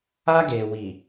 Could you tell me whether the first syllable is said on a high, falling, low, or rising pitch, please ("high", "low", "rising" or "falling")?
high